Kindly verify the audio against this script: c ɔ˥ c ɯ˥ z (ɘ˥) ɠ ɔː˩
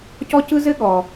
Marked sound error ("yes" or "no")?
no